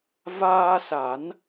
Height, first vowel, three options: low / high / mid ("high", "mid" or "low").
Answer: low